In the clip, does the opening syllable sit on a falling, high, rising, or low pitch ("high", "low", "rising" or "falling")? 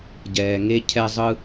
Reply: low